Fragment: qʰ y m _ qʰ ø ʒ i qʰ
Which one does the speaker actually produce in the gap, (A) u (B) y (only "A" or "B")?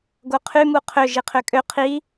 A